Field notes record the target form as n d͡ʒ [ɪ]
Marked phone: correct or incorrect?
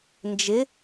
correct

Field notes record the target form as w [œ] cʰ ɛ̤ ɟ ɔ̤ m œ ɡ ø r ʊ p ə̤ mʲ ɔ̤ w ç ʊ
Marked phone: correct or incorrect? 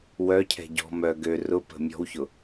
correct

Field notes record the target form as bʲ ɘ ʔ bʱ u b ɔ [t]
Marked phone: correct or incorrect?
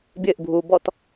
correct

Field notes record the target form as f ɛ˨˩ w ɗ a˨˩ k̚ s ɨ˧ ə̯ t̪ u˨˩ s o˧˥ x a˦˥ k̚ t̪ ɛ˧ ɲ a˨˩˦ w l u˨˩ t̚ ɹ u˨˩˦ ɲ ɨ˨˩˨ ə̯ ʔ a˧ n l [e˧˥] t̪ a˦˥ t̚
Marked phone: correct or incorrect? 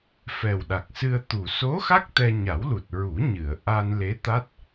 correct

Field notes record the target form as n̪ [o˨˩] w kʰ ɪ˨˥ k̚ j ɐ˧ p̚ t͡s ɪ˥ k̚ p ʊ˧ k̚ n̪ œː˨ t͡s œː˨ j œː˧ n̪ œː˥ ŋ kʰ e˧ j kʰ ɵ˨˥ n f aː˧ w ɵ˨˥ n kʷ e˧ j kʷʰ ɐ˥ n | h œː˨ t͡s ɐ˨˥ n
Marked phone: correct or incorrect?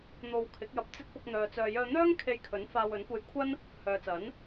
incorrect: o˨˧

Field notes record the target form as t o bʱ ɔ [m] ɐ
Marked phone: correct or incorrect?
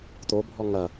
incorrect: ŋ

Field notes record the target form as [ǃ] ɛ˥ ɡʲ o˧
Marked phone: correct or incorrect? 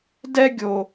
incorrect: d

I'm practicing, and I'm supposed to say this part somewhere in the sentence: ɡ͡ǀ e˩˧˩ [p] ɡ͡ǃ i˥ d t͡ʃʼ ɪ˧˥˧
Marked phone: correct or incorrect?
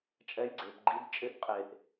correct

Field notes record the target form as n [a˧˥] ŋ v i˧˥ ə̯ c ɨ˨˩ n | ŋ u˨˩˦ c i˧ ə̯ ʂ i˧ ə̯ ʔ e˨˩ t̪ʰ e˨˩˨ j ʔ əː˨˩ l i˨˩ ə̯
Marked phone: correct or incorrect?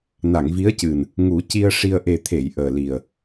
incorrect: a˨˩˨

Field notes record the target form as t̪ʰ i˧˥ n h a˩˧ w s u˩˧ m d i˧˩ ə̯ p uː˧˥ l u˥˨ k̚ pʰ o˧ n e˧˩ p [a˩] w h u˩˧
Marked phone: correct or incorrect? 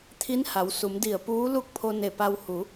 incorrect: a˧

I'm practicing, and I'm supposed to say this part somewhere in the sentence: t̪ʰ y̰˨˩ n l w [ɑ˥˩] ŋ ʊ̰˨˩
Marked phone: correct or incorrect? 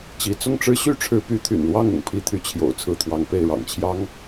correct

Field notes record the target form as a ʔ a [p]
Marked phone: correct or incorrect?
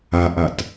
incorrect: t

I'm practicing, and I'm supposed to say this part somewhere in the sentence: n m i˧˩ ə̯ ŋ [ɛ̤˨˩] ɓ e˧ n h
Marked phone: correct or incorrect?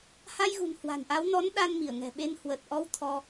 correct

